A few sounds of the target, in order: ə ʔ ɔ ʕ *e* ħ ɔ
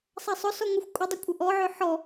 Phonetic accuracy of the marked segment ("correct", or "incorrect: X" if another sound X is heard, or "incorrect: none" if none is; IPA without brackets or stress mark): incorrect: ø